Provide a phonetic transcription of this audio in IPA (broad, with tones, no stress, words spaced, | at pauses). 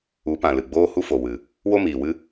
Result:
u˨˦pã˨ lɨ˨ɡ͡boː˦hu˦fo˨ wɨ˨ | wo˦ miː˨wɨ˦